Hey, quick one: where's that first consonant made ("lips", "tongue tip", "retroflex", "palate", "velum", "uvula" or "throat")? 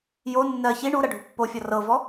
palate